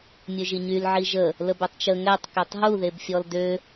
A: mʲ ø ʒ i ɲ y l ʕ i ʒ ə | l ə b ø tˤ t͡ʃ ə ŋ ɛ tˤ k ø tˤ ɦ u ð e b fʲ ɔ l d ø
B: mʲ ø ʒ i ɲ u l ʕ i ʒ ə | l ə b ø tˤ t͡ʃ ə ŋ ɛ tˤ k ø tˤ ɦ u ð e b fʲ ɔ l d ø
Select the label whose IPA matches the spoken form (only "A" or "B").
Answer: A